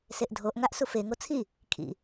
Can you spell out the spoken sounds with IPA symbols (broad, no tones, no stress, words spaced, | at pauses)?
seʔdʱoʔ ŋaʔsufe ŋot͡sʰi | kʰḭ